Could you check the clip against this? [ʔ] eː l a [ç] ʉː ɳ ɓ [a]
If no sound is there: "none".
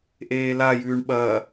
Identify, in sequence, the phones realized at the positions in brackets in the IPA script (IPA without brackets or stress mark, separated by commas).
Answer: ʔ, j, ɐ